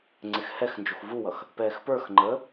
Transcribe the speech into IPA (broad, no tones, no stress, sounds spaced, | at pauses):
ŋ͡ǀ ɪ x h ɛ x n d͡ʒ u x v u w ʌ x | p ɛː x p ə˞ x ŋ͡ǃ əː